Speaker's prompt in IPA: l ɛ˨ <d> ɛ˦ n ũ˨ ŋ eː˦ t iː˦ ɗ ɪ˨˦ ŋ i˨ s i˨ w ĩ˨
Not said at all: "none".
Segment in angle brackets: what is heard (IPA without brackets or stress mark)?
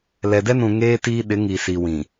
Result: d